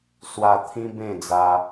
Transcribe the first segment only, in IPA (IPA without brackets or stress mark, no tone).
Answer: s